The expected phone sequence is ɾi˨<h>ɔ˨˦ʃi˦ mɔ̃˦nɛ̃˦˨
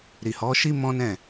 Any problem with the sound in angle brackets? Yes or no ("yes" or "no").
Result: no